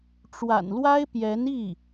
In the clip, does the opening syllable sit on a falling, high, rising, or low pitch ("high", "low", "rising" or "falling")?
low